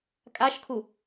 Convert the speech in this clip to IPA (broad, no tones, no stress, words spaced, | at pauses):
kʼaʃkʰu